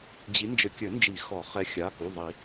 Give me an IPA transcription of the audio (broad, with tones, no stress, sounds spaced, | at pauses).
d͡ʑ i˨˦ n d͡ʒ ɘ˨˦ kʲ ɘ˨˩˦ n d͡ʒ i˨˩˦ x ɔ˨˩˦ χ ɛ˨˦ xʲ a˩˧˩ k u˩˧˩ ðˤ i˨˩˦